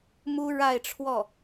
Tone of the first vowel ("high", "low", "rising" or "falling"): high